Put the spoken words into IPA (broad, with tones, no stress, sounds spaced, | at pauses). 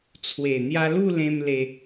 t͡sʰ w e˨˩ n̪ j a˧ l u˥˧ l ẽ˧ m l e˧